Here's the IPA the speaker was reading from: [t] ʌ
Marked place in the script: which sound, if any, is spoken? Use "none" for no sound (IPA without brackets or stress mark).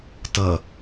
t